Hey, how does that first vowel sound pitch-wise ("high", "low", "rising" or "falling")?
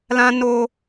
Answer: high